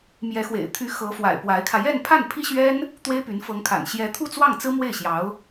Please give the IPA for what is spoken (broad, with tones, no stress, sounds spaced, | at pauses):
m j ɛ˧˥ x w ḛ˨˩ ɪ̯ t̪ʰ y˧˥ x ɤ˧˥ f w a̰˨˩ ɪ̯ p w a˧˥ ɪ̯ kʰ ä˧ j ɛ˥˧ n pʰ a˥˩ n pʰ i˥ ɕ ɥ ɛ˥ n | t̪ w e˥ ɪ̯ p y˧˥ n f ɤ˧˥ ŋ kʰ a̰˨˩ n ɕ j ɛ˧˥ t̪ʰ u˥˧ t͡s w ɑ˥˩ ŋ t͡s ɹ̩˥ m w e˥˩ ɪ̯ ɕ j ɑ˧˥ ʊ̯